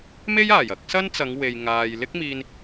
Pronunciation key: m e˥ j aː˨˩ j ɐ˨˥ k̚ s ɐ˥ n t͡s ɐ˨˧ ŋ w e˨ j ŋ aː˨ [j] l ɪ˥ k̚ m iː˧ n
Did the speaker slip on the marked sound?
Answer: no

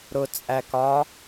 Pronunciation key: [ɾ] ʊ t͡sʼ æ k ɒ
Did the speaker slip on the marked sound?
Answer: no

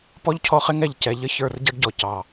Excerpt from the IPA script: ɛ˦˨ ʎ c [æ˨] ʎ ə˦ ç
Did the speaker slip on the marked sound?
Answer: yes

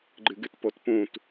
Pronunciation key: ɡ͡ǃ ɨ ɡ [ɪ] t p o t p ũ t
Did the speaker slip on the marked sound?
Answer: yes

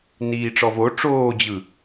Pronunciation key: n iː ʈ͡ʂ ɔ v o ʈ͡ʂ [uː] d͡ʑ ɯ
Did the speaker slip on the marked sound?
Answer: yes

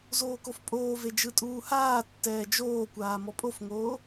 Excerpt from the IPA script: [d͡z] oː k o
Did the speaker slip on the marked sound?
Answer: yes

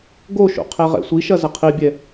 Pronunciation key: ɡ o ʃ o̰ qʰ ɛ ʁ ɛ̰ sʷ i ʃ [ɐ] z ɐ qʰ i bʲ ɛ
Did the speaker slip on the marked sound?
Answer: no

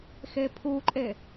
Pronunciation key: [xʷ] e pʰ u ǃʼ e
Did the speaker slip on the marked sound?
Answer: yes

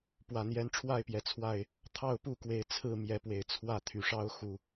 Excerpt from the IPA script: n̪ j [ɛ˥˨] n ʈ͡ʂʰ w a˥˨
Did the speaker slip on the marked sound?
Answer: yes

